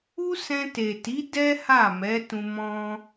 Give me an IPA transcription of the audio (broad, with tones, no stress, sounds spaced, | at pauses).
u˦ s ɛ̃˧ t e˨ t i˨˦ d ɛ˦ h a˦˨ m ɛ˨˦ t ũ˧ m ɔ̃˧